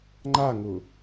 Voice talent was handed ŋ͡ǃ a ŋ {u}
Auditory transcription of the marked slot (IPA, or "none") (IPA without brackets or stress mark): ʊ